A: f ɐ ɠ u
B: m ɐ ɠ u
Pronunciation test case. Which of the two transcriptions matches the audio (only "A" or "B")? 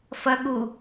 A